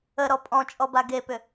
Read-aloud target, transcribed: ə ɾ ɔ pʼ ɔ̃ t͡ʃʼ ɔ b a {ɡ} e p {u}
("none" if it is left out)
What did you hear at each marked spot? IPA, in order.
ɡ, ʏ

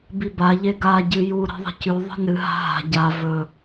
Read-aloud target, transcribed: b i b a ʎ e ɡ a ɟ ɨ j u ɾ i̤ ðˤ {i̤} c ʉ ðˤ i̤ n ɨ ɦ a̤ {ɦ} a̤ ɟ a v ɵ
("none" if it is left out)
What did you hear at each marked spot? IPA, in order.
i̤, ɦ

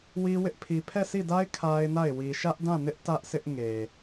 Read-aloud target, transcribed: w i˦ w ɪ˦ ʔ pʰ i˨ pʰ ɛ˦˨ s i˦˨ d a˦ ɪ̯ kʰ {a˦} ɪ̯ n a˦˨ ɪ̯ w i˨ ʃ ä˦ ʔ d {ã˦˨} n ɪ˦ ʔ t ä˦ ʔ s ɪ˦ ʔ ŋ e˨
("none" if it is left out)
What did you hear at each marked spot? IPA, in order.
a˦, ã˦˨

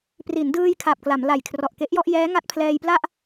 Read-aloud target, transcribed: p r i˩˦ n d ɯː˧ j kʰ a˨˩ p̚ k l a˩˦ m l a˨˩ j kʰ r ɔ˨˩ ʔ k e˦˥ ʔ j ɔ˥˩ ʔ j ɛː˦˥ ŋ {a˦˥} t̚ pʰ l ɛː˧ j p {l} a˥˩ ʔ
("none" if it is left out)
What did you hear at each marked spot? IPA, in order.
a˦˥, l

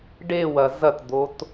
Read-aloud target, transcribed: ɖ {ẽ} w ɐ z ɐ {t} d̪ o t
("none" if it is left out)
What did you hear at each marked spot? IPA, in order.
e, t

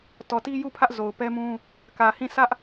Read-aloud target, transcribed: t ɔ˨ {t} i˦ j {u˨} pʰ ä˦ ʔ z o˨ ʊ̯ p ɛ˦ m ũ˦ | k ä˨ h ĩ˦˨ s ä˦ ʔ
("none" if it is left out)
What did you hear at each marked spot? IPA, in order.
t, u˦˨

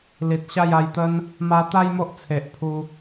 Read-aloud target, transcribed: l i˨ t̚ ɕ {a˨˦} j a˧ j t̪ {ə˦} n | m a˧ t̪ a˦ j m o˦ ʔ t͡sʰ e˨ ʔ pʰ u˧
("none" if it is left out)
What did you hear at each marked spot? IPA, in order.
a˥˧, ə˦

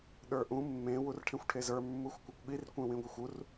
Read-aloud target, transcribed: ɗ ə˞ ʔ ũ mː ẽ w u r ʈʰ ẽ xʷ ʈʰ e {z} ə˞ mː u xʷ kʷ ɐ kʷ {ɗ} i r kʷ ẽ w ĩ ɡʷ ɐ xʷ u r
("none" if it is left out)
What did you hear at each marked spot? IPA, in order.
z, ɠ

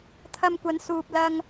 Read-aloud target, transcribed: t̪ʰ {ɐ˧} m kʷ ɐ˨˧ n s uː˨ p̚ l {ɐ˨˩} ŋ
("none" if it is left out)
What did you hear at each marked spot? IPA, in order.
ɐ˧, ɐ˧

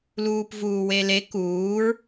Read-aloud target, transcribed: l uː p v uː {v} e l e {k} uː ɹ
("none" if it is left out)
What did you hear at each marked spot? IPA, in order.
w, k

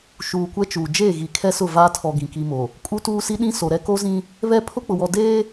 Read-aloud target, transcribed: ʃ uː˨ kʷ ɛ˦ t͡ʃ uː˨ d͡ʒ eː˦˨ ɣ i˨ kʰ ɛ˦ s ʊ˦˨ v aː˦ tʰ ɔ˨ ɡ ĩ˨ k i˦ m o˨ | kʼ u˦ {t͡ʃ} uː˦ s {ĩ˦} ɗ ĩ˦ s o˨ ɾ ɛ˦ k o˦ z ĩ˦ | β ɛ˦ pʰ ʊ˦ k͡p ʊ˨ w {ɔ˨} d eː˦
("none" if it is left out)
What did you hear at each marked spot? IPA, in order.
t, i˦, ɔ˨

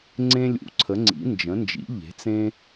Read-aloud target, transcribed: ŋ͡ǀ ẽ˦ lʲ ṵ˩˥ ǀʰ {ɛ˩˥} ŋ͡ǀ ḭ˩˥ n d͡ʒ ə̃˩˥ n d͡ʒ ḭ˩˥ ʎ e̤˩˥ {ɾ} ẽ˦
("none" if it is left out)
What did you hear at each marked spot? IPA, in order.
ə˩˥, t͡s

